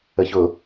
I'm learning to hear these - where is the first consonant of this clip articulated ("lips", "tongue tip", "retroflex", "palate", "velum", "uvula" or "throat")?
palate